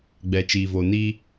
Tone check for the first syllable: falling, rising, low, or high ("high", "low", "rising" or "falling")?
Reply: low